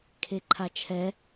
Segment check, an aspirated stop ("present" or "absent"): present